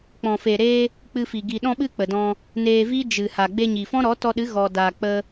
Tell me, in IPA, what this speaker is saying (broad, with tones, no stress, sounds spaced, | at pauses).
k͡p ɔ̃˨ f e˨ ɾ eː˧ | k͡p ɨ˧ f i˨ ɡ i˨ ɗ ɔ̃˧ ɓ ɨ˧ k͡p ə˨ d ɔ̃˧ | n eː˧ v i˦ d͡ʒ ɨ˨ h a˨ ɡ͡b e˧ ɲ i˨ f ɔ̃˦ ɾ ɔ˨˦ t ɔ˧ ɗ ɨ˨˦ ɣ ɔ˧ d aː˧ k͡p ə˧